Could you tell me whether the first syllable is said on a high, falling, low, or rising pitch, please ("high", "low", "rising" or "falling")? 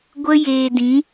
high